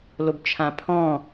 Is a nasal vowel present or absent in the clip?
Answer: present